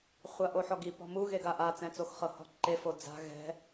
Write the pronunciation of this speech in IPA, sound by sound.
χʷ a ʔ o ħ ɔ ɡ i p ɔ̤ m u ɣ e ɡ a ʔ a t͡s ɛ̃ t͡s o x χ ɤ h ɔ̤ ǃ e f o d͡z a̤ ɣ ɛ̤

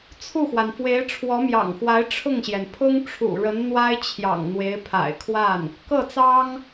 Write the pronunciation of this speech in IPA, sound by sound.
t͡sʰ u˥˩ x w a˩ n f w e˧˥ ɪ̯ ʈ͡ʂʰ w ɔ˧˥ m j ɑ̰˨˩ ŋ x w a˧˥ ɪ̯ ʈ͡ʂʰ ʊ˥˩ ŋ ɕ j ɛ˩ n pʰ ʊ˥ ŋ ʈ͡ʂʰ ṵ˨˩ ɻ ə˧˥ n n̪ w a˥ ɪ̯ t͡ɕʰ j ɑ̰˨˩ ŋ n̪ w e˧˥ ɪ̯ pʰ a̰˨˩ ɪ̯ kʰ w a˥˩ n | k ɤ˥˩ t͡s ɑ˥ ŋ

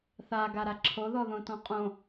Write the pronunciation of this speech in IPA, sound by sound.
θ a ɡ a ɾ a ǁʰ o ð ɔ ð õ t ɔ̃ qʼ õ

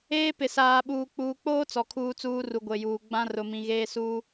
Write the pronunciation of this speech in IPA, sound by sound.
eː˦ p ɪ˨ s aː˨ ɓ uː˨ k͡p uː˨ k͡p oː˦ t͡s ɔ˨ kʰ uː˦ t͡s uː˦ r u˨ ɡʷ e˨ j uː˨ ɡ͡b ã˦ r ʊ˨ m ĩ˨ ɣ eː˦ s uː˦

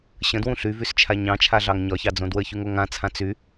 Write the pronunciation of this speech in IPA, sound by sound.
ɕ ə̃ d w ũ ɬ y v y s t͡ʃʰ a ɲ ɑ̃ t͡ʃʰ a ɮ ɑ ŋ ɲ ɒ ç ɑ d͡z õ d w ə ç y ŋ o ŋ ã t͡sʰ ã t͡s y

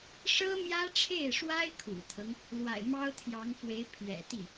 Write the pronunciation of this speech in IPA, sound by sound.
ʂ ɤ˥ m j ä˥ ʈ͡ʂʰ e˥˩ ɪ̯ ʂ w a˥ ɪ̯ kʰ ṵ˨˩ t̪ʰ ɤ˦ ŋ | l w a̰˨˩ ɪ̯ m ɑ˥ ʊ̯ t̪ʰ j ɑ˧˥ ŋ f w e˧˥ ɪ̯ pʰ ɥ ɛ̰˨˩ t̪ i˥˩

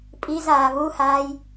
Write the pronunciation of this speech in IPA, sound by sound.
pʼ i z aː β u h aː j

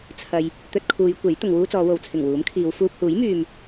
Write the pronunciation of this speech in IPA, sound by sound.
t͡sʰ ɐ˨ j | t̪ ɵ˧ t̚ kʰ uː˨˧ j kʷ e˨˥ j t̪ ʊ˨ ŋ w uː˥ t͡s ɔː˨˧ w o˨˧ w t͡sʰ ɪ˨˩ ŋ w uː˨˥ m kʰ iː˨˧ w f uː˧ p̚ h uː˨˥ j m yː˨ m

